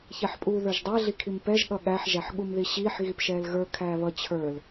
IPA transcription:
ç ɛ ħ pʼ uː ð ə˞ ʒ dˤ ɛ ɮ i kʰ i m p ɛ ʒ ɠ ʌ ɠ æ ħ ʒ æ ħ ɠ u m ð i ɕ iː ħ ɣ i p ʃ ɛː l ɣ ə˞ kʰ æː β ʌ t͡ɕʰ ə˞ l

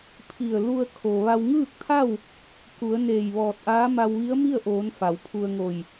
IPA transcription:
pʰ i˧˩ ə̯ l u˧ ə̯ kʰ o˩ ʋ a˧ w ŋ ɯː˥˨ k̚ t̪ʰ a˥˨ w | k u˩˧ ə̯ n eː˧˩ j ʋ ɔː˧˩ t̚ ʔ aː˧˥ m a˧ w ʋ i˧˥ ə̯ m i˥˨ ə̯ ʔ oː˩˧ n f a˩˧ w pʰ u˧ ə̯ ŋ o˧˩ j

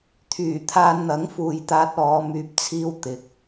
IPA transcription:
t̪ʰ yː˨˩ t̪ʰ aː˧ n n̪ ɐ˨˥ ŋ f uː˨ j t̪ aː˧ t̚ ɔː˨˧ m yː˨ p̚ t͡sʰ iː˧ w t̪ ɪ˨˥ k̚

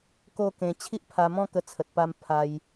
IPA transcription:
k o˥˧ k ẽ˧ t͡ɕʰ i˦ ʔ pʰ a˧ m ɔ̃˥˧ k ə˧ t͡sʰ ə˨ t̚ p a˧ m pʰ a˧ j

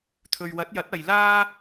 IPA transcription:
t̪ʰ ɵ˨ ɥ w ɐ˨˥ t̚ j ɐ˨˥ t̚ ɐ˨ j l aː˥

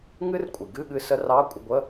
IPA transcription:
ŋ ɨ˦˥ r kʷʼ ɨ˩ ɡ ɨ˧˥˧ ɠ ɨ˧ s ə˦˥ r ɑ˧˥˧ kʷʼ ə˧ ɡʷ ə˧˥˧

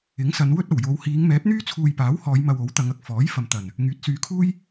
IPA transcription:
ɪ˨˥ ŋ s ɐ˨˧ n w ɵ˥ t̚ ɐ˨˩ w j o˨˧ w h iː˨˧ ŋ m ɛː˨˥ p̚ n̪ yː˥ t͡sʰ uː˧ j p aː˨˥ w h ɔː˨˧ j m ɐ˧ w o˨˥ w t̪ ɐ˨˧ ŋ ɐ˨˥ k̚ f ɔː˨˥ j f ɐ˨ m t̪ ɐ˨˩ n | ŋ yː˨˥ t̚ s yː˨˧ kʰ uː˥ j

